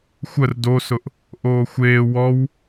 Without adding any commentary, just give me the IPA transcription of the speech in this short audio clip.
xʷ ə r d o s ʊ ʔ | ʔ oː xʷ eː w ɔ w

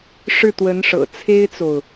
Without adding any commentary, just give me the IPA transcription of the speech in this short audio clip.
ʂ ɻ̩˥˩ t̪ w ə˧˥ n ʂ ɤ̰˨˩ t͡sʰ e˥ ɪ̯ t͡s o˨ ʊ̯

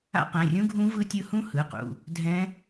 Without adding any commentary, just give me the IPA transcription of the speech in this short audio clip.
a̰˦˥ q ɛ̃˩˧˩ rʲ ũ˦˥ ɡʱ ũ˦˥ v ɯ˦˥ tʲ ɯ˦˥ h ũ˦˥ h ɯ˩˧˩ q ṵ˩˧˩ | dʱ ɛ̃˦˥

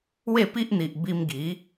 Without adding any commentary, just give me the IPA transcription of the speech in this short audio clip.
w e˥˧ p i˦ ʔ n̪ i˨ ʔ b i˧ m ɡ i˨˦

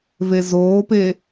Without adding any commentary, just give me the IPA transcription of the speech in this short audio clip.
v e z oː p e

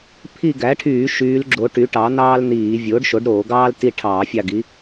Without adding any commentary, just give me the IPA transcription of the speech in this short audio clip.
pʰ i˦˨ ɡ æ˩˥ ʈʰ yː˧˩˧ ʃ yː˩˧ l ɡ͡ǁ o˩˧ ʈ y˩˥ ʈ ɑ˩˥ n̪ ɑː˥ l n̪ iː˧˩˧ vʲ oː˩˥ ɖ ʃ o˩˥ ɖ ɾ oː˧˩˧ ɡ ɑː˥ l t i˦˨ ʈʰ ɑː˧˩˧ fʲ ɑ˦˨ ɡ i˩˥

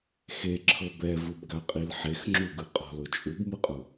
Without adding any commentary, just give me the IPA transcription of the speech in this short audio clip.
x e ǁʰ ɤ b ɛ v ɯ b ɡ a qʼ i l ħ e x ŋ͡ǁ u ɡ ɯ qʼ ɔ̤ l o t͡ʃʼ u b m ɯ qʼ u

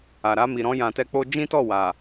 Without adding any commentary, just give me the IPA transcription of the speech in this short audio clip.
a˨ ɾ a˧ m i˨ ɾ ɔ̃˧ j ã˨ t ɛ˧ k͡p o˧ d͡ʒ ĩ˦ t ɔ˦˨ w a˨

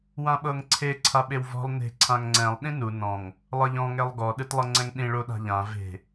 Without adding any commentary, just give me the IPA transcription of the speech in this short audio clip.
w ã ɓ ɤ ŋ ǀʰ e ǀʰ a ɓ e w v ɔ̤ lˠ n e̤ ǀʰ ã ŋ ŋ͡ǀ ɛ̃ lˠ ɗ ĩ n u n ɔ̃ ŋ | lˠ ɤ ʎ ɔ̃ ŋ ɛ lˠ ɡ ɔ ɗ ɯ t lˠ ɤ ŋ͡ǀ ɛ̃ ŋ ɗ ĩ ɭ o ɗ a̤ ʎ ã v e̤

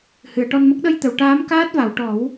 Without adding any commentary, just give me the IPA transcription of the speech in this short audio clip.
h ɨ˨˩˨ ə̯ ʈ ɔ˧ n m ə˦˥ k̚ ɗ ə˧ j t̪ ə˨˩˨ w ʈ aː˧˥ m k aː˦˥ t̚ v a˨˩˨ w ʈ ɔ˨˩˦ w

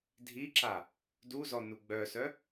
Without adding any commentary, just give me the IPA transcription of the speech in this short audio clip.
dʱ i ǁ a | d u z ɔ n u ɡ͡b œ s œ

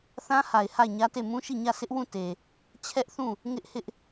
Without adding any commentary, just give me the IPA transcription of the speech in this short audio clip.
θ ã˦ h a˨ ɪ̯ h a˦˨ ɪ̯ ɲ ä˦ t e˦˨ m ũ˦ ʃ i˦˨ ɲ ä˦˨ s ɪ˦ ʔ w ũ˦˨ t e˨ | t͡ɕʰ ɛ˦ ʔ θ ũ˦˨ | ŋ ɪ˦ ʔ h ɪ˦ ʔ

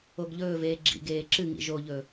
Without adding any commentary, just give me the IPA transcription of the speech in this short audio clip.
o ɡ ʎ ɵː v eː ɡ͡ǁ ḭ ɡ eː ǁ ɨ ŋ ḭ ʒ o ʎ ɵ

